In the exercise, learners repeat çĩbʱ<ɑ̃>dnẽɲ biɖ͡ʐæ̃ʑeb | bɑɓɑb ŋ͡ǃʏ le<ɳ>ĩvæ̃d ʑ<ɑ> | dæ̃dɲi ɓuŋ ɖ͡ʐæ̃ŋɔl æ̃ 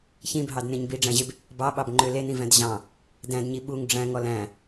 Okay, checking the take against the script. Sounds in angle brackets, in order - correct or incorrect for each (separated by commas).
incorrect, incorrect, incorrect